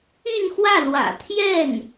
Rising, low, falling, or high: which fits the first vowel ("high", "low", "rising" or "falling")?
falling